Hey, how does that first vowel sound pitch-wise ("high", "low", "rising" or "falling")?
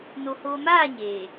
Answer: low